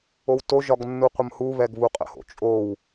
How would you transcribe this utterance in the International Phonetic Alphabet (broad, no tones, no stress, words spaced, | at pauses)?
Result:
owtoʒɒɡ nːuqʷəmhuβɛɡ βuqʼə̰ho̰t͡ʃʼow